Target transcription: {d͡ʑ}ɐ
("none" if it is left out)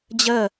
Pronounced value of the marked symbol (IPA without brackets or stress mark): d͡ʑ